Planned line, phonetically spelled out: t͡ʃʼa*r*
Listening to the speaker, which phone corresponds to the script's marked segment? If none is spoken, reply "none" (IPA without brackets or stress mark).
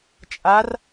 r